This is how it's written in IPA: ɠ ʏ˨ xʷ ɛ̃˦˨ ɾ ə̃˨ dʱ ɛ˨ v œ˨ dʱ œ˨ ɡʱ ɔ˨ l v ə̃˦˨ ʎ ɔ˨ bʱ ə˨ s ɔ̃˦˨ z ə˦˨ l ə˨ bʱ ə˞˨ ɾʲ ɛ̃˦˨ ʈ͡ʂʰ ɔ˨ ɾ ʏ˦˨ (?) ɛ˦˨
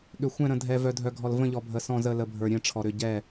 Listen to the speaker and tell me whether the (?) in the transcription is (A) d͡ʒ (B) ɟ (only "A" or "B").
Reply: B